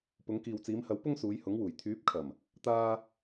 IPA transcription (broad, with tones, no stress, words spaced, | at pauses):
pʊ˨˧ŋkiː˨wt͡siː˨˧mhɐ˨˥w pʊ˥ŋsuː˨˧jhʊ˨˥ŋwuː˨˩j t̪ʰyː˨˥p̚kʰɐ˨˩m | t̪aː˥